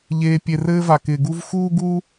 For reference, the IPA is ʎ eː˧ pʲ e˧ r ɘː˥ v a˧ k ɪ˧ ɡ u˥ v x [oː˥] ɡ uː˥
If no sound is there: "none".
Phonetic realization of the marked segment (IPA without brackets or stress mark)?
uː˥